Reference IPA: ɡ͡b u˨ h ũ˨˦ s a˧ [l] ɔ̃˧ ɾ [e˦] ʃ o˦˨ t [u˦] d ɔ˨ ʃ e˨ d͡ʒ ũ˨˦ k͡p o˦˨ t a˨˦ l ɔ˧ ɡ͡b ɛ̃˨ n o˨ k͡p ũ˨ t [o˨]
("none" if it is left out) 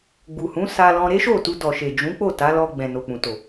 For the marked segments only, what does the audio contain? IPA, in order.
l, e˦, u˧, o˨

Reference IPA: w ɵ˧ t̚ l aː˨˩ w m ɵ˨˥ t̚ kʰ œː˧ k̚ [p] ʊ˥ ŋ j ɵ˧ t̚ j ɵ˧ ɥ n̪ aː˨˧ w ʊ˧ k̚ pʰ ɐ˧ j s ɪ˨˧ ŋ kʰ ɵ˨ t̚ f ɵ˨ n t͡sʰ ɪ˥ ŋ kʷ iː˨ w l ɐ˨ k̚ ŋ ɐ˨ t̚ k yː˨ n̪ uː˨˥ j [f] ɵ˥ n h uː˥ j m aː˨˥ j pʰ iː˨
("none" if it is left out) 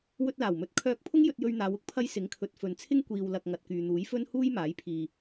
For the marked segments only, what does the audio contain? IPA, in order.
pʰ, f

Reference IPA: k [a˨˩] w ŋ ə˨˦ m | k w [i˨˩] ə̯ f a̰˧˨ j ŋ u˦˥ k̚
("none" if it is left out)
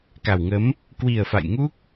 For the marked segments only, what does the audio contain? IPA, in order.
a˨˩, i˨˩

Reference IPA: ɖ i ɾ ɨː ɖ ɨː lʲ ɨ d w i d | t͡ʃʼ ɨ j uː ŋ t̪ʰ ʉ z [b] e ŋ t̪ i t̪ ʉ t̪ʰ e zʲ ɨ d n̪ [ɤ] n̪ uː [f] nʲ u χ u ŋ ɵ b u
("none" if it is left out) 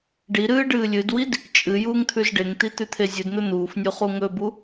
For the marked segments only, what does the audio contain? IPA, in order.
ɖ, ɵ, f

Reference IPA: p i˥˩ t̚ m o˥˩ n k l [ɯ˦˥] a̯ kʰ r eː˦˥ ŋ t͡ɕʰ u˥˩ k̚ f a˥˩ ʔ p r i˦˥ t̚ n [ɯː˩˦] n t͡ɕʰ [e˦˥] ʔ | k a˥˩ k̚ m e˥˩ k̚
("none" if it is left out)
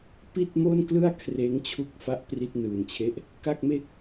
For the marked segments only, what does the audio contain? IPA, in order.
ɯ˥˩, ɯː˨˩, e˦˥

